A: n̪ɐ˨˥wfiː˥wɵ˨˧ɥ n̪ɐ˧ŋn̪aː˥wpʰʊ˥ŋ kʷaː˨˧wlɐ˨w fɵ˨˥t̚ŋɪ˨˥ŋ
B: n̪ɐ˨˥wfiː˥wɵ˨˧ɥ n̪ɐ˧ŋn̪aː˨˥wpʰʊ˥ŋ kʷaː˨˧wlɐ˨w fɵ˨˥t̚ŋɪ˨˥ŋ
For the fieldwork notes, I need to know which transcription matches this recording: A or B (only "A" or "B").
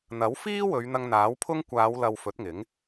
B